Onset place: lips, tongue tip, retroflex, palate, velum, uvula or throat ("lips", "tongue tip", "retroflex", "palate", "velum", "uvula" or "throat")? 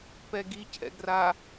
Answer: lips